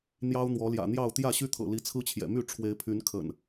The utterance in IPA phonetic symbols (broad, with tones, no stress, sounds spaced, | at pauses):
n̪ j ɑ˦ ʊ̯ n̪ w ɔ˨˦ l j ä̰˨˩ n̪ j ɑ˥˨ ʊ̯ t̪ j ä˥˨ ɕ y˦ t̪ʰ ɤ̰˨˩ l i˨˦ t͡sʰ ɹ̩˦ t͡ɕʰ j ɛ̰˨˩ m y˥˨ ʈ͡ʂʰ w e˨˦ ɪ̯ pʰ y˨˦ n kʰ ə̰˨˩ n